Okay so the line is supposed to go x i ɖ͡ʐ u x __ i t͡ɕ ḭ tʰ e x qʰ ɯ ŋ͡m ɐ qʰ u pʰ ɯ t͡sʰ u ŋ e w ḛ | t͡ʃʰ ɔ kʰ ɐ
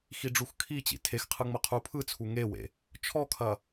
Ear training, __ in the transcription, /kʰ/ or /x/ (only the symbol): kʰ